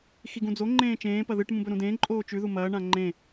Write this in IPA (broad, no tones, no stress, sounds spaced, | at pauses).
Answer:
x i ɡ ũ d͡z o ŋ͡ǃ ẽː t͡ʃ ẽː p ɐ ð ɨ ʈ m ũ b ɵ ɾ ũ d ẽː ǃʼ oː t͡ʃ ʉ ð u m ɐː ɳ ã ŋ͡ǃ ẽ